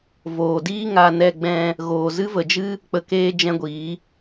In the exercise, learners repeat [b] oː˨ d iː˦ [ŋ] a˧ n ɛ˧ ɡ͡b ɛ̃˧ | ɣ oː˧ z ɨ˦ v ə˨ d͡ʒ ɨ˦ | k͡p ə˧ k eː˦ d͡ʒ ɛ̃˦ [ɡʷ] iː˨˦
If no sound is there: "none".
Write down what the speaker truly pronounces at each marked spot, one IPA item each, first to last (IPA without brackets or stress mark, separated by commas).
v, ŋ, ɡʷ